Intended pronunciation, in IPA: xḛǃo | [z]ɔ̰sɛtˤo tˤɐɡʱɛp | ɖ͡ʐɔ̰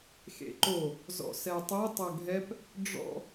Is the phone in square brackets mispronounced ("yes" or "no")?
no